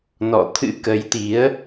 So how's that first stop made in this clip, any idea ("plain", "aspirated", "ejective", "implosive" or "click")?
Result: aspirated